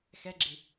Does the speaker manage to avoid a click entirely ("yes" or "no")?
no